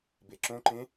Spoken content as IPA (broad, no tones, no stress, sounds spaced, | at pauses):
b e ǁ õ ǃ ẽ